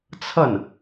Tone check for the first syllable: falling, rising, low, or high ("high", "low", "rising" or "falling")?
falling